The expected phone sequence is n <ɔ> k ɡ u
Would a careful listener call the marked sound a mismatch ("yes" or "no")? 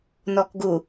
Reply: no